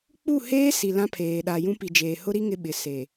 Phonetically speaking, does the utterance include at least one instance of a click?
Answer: no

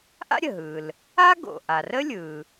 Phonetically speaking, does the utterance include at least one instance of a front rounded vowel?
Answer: no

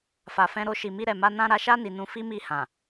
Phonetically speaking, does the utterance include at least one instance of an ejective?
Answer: no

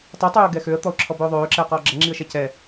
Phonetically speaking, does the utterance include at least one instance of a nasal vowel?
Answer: no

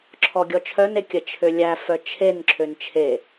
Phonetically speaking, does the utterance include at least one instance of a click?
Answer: yes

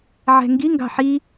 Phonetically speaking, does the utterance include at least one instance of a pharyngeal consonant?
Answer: yes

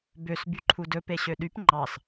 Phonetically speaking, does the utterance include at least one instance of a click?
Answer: yes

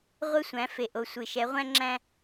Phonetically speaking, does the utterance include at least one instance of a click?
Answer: yes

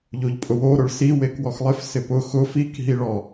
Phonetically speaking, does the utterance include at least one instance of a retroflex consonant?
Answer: yes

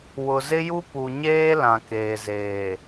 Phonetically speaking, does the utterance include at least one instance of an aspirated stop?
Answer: no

